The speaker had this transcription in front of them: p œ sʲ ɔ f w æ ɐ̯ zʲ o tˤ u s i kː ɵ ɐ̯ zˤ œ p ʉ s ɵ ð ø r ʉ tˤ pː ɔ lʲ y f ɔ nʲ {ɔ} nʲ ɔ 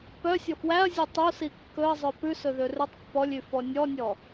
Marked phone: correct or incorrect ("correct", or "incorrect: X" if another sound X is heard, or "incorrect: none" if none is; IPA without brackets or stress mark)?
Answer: correct